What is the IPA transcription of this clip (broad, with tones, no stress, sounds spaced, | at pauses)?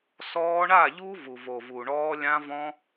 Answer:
s ɔː˧ ɳ a˦˨ ʎ u˦ v u˨ v o˨ v u˨ ɳ ɔː˧ lʲ ã˦ v ɔ̃˦